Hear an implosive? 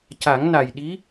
yes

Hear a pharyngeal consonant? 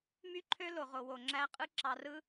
no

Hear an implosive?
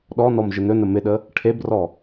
yes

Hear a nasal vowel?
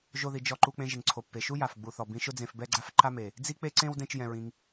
yes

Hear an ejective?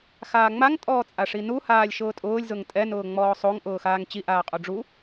yes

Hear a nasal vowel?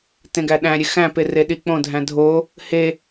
yes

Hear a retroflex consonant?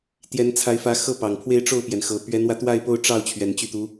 yes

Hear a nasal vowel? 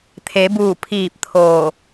no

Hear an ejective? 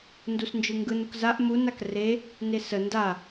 no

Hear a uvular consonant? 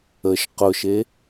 yes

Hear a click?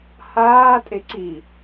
yes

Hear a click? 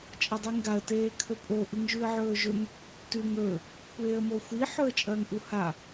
no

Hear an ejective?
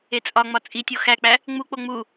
yes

